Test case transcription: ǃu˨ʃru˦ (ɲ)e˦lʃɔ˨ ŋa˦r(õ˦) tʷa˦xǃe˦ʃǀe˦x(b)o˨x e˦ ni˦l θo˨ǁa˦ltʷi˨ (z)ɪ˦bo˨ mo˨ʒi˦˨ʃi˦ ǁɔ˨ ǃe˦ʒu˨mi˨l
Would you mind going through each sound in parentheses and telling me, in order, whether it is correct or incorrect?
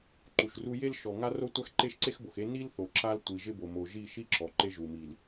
incorrect: j, incorrect: o˦, correct, incorrect: ʒ

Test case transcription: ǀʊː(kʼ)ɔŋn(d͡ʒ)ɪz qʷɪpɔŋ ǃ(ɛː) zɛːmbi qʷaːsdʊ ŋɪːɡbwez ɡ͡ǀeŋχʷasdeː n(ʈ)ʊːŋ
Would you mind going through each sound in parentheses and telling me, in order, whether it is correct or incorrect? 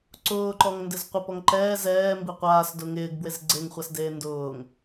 incorrect: ǃ, incorrect: d, correct, incorrect: d

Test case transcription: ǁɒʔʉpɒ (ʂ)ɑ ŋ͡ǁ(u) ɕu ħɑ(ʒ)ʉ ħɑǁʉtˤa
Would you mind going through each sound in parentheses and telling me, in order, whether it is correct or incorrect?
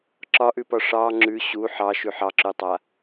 correct, incorrect: ʉ, incorrect: ʃ

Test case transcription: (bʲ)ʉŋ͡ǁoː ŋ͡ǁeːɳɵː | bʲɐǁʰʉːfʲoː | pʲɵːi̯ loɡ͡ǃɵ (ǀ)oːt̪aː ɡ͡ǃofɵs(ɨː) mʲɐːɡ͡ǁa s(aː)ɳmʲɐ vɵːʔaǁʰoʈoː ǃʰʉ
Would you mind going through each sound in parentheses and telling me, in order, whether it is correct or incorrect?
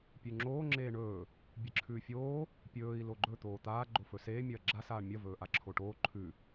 incorrect: pʲ, incorrect: t̪, incorrect: eː, correct

